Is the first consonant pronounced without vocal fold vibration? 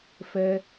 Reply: yes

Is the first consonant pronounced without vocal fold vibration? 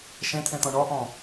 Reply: yes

